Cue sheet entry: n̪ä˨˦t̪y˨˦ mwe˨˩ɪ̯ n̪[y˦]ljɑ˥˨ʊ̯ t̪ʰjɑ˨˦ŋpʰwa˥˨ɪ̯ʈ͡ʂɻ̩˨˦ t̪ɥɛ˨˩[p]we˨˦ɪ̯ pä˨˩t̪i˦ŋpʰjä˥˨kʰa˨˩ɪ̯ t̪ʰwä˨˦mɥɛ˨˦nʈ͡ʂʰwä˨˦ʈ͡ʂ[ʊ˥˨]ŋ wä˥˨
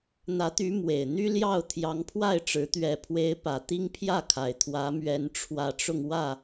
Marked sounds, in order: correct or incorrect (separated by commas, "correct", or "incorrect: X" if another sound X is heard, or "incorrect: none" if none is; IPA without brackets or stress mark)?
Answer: correct, incorrect: pʰ, incorrect: ʊ˧